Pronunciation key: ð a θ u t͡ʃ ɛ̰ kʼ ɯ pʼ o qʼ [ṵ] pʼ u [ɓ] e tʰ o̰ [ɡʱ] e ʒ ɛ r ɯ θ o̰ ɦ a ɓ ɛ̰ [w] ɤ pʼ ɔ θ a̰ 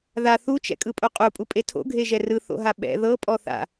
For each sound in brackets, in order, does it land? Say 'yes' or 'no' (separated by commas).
no, no, yes, no